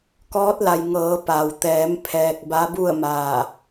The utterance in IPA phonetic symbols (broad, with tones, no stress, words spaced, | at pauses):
kɔː˧˥t̚la˩j ŋɤː˩˧ pa˩wt̪ɛː˩˧m pʰɛː˧k̚ ba˧˥bu˥˨ə̯maː˧˩